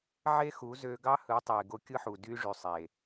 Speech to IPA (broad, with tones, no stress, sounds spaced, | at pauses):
ʕ e˦ x u˨˦ z ø˧ ɡ ɑ˦ h ɯ˨˦ tˤ e˨ ɡ o˧ kʲ ɯ˦ ħ u˨ d y˦ ʐ y˨ sˤ e˨